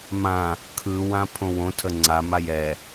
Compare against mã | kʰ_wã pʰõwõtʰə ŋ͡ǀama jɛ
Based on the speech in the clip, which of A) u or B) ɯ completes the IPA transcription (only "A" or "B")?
B